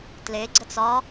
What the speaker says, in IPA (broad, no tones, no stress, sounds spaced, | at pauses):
t l e ɡ͡ǀ ə t͡s ɒ